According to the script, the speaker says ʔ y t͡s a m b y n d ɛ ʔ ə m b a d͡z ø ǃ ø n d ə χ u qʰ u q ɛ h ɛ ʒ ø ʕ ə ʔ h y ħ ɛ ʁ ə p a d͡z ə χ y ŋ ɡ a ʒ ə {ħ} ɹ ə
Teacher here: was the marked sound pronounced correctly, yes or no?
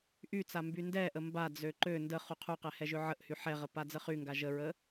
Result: no